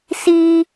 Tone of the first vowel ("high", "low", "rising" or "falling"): high